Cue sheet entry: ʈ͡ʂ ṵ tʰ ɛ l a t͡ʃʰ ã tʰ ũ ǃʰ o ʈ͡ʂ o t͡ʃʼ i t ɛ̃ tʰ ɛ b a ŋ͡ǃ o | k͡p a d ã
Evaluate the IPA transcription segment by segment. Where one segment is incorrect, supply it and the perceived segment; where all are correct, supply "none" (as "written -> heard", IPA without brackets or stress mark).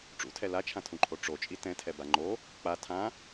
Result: d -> tʰ